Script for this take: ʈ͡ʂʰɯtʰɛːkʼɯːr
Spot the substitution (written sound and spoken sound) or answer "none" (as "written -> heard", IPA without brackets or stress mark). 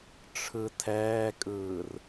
none